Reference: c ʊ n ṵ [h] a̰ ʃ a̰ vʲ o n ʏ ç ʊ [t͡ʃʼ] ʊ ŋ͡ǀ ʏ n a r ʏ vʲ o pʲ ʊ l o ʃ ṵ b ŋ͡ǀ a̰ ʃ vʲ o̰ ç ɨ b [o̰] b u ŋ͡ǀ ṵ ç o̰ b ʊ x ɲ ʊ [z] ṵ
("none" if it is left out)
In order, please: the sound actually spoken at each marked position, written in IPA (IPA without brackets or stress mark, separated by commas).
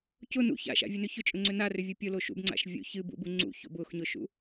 ç, t͡ʃʼ, ṵ, ʃ